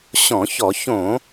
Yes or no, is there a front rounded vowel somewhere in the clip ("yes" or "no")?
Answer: no